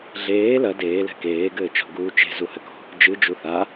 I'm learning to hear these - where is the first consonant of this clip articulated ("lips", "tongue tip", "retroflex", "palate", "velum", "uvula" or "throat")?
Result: tongue tip